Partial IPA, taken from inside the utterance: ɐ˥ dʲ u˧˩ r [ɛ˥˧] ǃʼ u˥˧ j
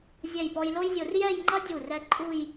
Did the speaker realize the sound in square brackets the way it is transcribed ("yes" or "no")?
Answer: no